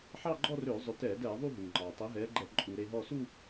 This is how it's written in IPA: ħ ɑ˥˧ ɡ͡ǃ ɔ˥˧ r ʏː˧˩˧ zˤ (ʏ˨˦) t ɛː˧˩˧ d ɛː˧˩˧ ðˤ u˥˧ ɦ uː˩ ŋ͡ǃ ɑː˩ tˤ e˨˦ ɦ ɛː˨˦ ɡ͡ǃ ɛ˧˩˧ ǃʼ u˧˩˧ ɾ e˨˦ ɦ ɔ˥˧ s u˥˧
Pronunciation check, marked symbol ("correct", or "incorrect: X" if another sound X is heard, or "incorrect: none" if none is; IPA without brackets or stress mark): correct